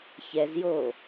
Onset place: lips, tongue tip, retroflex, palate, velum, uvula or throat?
palate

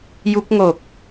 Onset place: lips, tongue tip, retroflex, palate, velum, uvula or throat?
palate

